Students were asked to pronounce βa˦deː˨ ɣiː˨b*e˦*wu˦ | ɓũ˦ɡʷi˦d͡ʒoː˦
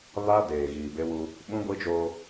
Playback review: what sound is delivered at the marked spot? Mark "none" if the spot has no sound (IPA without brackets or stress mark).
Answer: e˦